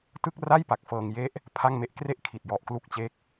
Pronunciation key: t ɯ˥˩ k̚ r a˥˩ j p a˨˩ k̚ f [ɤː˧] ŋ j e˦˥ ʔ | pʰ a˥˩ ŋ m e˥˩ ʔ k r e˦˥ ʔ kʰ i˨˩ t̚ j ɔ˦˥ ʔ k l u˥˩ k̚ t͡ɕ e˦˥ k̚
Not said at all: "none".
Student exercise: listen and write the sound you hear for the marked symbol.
ɤː˧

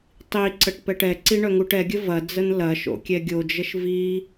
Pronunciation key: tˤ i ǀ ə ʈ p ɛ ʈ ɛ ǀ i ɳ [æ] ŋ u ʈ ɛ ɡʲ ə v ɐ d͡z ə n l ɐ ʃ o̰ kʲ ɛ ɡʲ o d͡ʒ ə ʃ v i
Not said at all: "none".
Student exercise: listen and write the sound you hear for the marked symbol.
œ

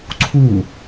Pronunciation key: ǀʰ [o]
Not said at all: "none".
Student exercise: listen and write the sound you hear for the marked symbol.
u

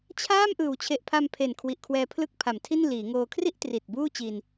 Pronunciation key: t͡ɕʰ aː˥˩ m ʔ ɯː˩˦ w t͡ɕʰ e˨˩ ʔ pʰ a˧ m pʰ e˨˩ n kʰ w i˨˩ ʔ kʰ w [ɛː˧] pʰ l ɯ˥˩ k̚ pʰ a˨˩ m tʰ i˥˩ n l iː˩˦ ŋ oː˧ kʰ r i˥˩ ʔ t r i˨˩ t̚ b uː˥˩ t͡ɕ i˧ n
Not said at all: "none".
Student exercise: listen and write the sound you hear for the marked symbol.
ɛː˧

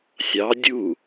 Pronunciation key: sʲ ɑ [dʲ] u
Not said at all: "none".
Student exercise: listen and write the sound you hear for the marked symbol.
dʲ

